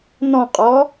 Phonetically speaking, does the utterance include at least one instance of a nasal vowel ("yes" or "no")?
yes